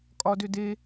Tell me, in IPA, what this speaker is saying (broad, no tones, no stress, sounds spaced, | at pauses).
kʼ ɒ d ʏ d e